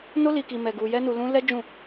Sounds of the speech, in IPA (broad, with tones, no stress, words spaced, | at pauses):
no˦li˧ ki˧mɛ˧ ɡu˧jɛ˦nu˧lũ˦ lɛ˦d͡ʒũ˦˨